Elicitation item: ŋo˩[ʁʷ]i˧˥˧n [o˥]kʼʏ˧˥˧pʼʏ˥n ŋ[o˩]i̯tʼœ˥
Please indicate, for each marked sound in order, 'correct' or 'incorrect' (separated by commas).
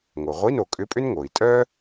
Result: correct, incorrect, correct